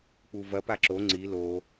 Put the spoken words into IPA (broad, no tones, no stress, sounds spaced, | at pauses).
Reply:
k͡p u v ɐ p a ǁ o ŋ͡ǀ i l o